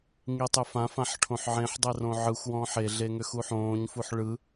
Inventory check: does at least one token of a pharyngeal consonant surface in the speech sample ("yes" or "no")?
yes